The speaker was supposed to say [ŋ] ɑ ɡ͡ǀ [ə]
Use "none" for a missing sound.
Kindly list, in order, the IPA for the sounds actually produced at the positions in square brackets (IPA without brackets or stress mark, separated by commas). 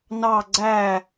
n, æ